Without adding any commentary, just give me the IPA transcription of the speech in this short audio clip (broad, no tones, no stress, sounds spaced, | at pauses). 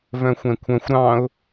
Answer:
v œ̃ xʷ ɛ̃ kʷʰ œ̃ xʷ ɾ ɑ̃ ʊ̯